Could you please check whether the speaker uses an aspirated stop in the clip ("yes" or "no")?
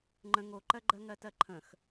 yes